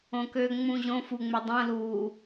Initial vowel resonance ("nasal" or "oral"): nasal